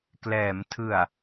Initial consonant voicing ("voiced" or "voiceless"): voiceless